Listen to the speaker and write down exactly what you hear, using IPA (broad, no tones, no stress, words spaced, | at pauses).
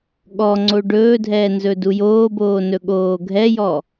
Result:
ɠɔŋ͡ǀo ɖɵːdʱɛː nzɵdujoːboː nɵɠoːɡʱɛjɔ